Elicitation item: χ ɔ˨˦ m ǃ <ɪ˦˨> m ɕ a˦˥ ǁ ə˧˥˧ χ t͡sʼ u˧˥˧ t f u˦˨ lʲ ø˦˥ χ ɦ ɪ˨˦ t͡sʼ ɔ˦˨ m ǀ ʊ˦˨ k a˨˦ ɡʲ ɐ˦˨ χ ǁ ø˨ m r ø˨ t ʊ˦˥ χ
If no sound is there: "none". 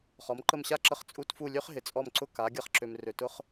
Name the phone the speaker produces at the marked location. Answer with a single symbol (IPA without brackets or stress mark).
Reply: ə˦˨